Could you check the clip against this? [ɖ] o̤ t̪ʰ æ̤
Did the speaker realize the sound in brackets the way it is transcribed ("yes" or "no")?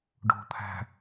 yes